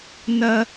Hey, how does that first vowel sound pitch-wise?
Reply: low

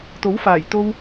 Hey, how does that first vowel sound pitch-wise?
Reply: rising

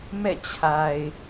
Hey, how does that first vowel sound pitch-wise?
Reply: falling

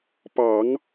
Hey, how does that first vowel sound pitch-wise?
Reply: low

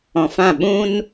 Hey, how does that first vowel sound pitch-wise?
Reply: low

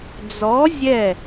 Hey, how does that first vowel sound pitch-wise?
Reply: rising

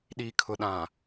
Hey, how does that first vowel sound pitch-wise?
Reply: low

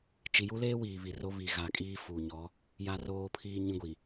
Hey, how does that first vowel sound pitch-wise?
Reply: low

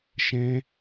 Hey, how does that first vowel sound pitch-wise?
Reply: high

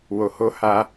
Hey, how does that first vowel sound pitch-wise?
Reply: low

